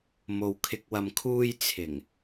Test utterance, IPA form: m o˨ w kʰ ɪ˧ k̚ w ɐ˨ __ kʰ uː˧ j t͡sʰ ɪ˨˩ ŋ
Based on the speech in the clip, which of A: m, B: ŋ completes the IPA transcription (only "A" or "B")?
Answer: A